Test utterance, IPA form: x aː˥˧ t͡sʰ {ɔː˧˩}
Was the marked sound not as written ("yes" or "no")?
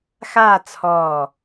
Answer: no